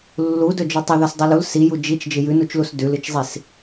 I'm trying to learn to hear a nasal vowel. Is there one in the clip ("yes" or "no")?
no